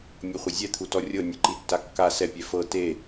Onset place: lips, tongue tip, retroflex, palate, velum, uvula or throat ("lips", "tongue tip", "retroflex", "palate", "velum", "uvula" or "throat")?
lips